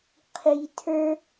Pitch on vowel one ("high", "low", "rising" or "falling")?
low